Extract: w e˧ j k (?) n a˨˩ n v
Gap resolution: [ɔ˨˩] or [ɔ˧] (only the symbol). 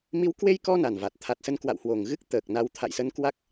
ɔ˧